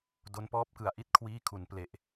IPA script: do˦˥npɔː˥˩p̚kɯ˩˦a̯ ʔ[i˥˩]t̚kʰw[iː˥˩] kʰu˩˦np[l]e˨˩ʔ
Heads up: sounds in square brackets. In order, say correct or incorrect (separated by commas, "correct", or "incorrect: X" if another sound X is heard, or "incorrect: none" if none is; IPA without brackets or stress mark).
correct, correct, correct